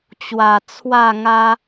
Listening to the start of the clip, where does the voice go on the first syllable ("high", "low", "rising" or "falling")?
low